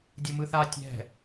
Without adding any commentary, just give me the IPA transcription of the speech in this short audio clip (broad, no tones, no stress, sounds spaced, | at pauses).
dʲ u m ɯ θ a tʲ ɛ̤